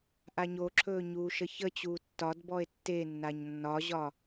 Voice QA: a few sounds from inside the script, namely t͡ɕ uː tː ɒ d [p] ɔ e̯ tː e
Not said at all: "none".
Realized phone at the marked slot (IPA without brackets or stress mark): b